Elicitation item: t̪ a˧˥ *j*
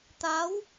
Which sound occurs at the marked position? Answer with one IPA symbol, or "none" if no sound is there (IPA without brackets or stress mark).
w